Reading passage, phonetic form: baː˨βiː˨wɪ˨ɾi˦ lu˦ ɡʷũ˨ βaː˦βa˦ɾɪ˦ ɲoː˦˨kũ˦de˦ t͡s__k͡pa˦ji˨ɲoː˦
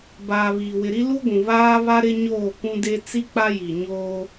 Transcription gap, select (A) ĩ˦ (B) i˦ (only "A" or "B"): B